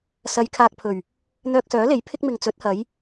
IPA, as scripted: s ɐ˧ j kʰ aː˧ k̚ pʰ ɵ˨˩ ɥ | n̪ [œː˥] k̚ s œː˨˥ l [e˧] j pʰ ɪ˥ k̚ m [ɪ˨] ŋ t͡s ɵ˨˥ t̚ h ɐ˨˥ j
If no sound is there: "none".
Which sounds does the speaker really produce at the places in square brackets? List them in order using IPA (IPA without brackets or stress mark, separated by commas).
œː˧, e˨˥, ɪ˨